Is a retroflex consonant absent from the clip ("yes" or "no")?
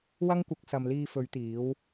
yes